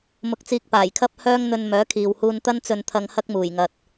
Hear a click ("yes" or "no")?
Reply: no